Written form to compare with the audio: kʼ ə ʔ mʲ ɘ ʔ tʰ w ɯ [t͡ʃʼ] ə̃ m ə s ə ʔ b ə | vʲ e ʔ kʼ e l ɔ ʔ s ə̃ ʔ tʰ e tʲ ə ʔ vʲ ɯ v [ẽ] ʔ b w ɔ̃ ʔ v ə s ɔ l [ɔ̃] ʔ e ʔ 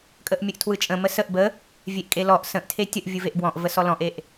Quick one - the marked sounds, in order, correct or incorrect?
correct, incorrect: e, correct

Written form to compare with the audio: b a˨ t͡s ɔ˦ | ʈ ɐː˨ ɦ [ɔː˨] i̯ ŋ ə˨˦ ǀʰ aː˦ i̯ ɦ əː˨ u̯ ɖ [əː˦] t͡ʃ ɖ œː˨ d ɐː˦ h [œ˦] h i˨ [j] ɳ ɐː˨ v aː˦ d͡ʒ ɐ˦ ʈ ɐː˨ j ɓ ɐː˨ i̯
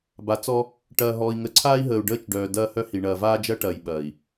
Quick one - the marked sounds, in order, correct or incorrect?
correct, correct, correct, incorrect: none

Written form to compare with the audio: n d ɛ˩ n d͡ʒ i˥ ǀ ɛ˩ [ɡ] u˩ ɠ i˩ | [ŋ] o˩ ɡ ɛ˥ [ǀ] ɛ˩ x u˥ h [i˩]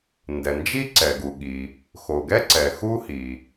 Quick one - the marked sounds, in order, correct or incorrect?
correct, incorrect: x, correct, correct

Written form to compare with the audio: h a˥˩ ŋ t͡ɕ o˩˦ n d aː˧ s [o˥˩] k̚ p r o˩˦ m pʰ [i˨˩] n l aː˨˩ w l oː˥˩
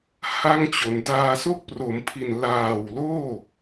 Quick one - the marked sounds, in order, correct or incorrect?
correct, correct

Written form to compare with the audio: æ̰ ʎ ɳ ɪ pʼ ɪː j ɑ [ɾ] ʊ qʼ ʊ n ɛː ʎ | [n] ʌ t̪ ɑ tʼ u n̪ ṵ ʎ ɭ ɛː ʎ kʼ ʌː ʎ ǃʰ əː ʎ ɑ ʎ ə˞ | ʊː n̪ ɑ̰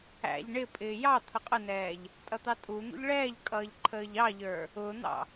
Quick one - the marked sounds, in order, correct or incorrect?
incorrect: t̪ʰ, incorrect: tʼ

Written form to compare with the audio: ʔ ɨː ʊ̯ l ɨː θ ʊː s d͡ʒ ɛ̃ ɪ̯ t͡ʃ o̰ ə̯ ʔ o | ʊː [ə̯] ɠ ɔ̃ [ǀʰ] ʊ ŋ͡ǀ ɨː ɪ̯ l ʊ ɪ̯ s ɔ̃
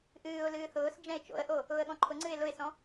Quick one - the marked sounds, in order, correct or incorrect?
correct, incorrect: ǃʰ

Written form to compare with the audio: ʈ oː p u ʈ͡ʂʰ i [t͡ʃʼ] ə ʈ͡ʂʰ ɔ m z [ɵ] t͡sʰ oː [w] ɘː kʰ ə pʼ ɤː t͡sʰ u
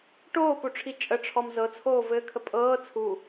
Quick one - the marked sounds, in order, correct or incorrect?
correct, incorrect: ɤ, incorrect: v

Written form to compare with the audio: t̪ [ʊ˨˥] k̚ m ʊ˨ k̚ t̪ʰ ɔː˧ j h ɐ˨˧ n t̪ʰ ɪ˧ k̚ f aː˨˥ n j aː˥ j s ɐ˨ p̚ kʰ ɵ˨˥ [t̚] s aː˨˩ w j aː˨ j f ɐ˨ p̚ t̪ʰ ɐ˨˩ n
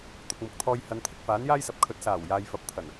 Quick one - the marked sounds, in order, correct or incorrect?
incorrect: ʊ˨, correct

